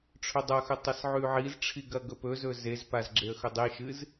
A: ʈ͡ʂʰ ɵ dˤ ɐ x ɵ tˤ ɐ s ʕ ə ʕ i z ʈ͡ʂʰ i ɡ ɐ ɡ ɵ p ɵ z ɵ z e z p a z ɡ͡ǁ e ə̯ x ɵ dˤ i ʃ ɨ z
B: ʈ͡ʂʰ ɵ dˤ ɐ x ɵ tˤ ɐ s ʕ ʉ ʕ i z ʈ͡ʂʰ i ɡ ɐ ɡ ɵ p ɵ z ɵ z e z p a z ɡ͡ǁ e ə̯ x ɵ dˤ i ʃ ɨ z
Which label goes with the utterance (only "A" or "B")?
B